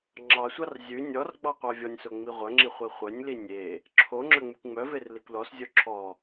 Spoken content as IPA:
ŋ͡ǁ ɑ sʷ ɑ r zʲ ʉ nʲ ɔ r ɡ͡b ɑ qʷ ɑ vʲ ɔ nʲ s o ŋ͡m i ʁʷ œ ŋ͡ǁ i χʷ i χʷ œ nʲ l i nʲ e | ǁʰ o ŋ͡ǁ œ ŋ͡m ʉ kʷ ŋ͡m œ v e r l i kʷ l ɔ s zʲ o ǁʰ ɔ

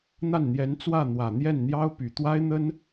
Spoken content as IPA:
n̪ a˥˩ n n̪ j ɛ˧˥ n t͡s w ä˥˩ n̪ w ä˨˩ n̪ j ɛ˥˩ n n̪ j ɑ˥ ʊ̯ p y˨˩ t̪ w a˥ ɪ̯ n̪ ə˥ n

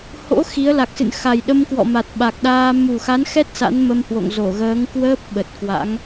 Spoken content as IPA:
h o̰˧˥ x i˨˦ ə̯ l a˨˩ k̚ s ɨ̰˧˨ n x a˨˩ j ɗ ə˧ m k w ɔ̰˧˨ m a˨˩ t̚ ɓ a˨˩ k̚ ɗ aː˧ m u˨˩ x a˨˦ n x ɛ˦˥ t̚ s a̰˧˥ n m ə˧ m h w o̰˧˨ ŋ z o˧˩ ɣ əː˨˦ ŋ k w əː˦˥ p̚ ɓ ə˨˩ t̚ k w a̰˧˥ ŋ

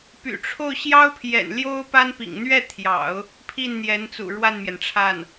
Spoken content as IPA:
p y̰˨˩ ʈ͡ʂʰ o˥˩ ʊ̯ ɕ j ɑ˥ ʊ̯ pʰ j ɛ̰˨˩ n l j o˥ ʊ̯ p a˥ n p ḭ˨˩ ŋ n̪ ɥ ɛ˥˩ t̪ʰ j ɑ̰˨˩˦ ʊ̯ | pʰ i˥˩ n n̪ j ɛ˧˥ n t͡s ṵ˨˩ ɻ w a˥˩ n m j ɛ˩ n ʈ͡ʂʰ a˥˩ n

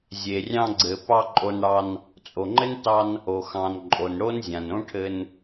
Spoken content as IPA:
zʲ e˩ rʲ ɑ̃˧ ɡ͡ǀ ɘ˩ p ɑ˧ ǃʼ o˧ n ɽ ɑ˧ n | t͡sʼ o˩ ŋ͡ǃ ɘ˥ n t ɑ˧ n | o˩ x ɑ̃˩ n ǃʼ o˩ n ɽ o˥ n zʲ ã˩ n õ˥ ʈʰ ɘ˧ n

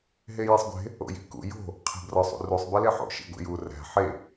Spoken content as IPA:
ɦ e j e sˤ ɡʷ e̤ | o̰ j i̤ k ṵ j o̤ | qʰ e̤ b r ɒ sˤ ṵ r u sˤ b e l e ħ o̰ ʃ ḭ ɡʷ ḭ j u r æ̤ ħ e

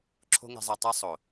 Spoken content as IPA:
ǁʰ o̤˦ ŋ e̤˧ zˤ e˧ tˤ e˦ sˤ o˨

